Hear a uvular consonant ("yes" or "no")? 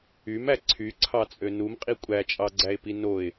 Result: yes